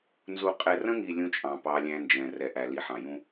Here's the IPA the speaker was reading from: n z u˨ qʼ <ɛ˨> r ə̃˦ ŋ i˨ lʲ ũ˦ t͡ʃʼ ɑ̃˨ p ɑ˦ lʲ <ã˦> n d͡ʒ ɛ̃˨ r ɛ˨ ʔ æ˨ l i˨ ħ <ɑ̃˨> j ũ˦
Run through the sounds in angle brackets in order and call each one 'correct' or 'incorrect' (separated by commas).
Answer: correct, incorrect, correct